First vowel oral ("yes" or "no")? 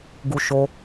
yes